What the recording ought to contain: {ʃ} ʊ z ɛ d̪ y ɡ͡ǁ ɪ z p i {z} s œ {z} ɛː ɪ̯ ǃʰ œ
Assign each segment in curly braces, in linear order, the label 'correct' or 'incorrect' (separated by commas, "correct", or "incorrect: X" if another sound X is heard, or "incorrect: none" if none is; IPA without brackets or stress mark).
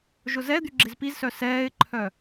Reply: incorrect: ʒ, correct, incorrect: s